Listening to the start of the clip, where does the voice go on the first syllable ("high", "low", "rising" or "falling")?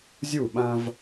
falling